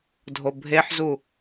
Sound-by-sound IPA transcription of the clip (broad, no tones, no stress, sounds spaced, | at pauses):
dʱ o bʱ e ħ z u